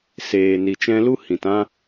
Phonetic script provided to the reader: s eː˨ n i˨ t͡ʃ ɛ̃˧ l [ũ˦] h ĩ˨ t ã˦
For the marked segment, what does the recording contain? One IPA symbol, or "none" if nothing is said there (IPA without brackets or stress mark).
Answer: u˦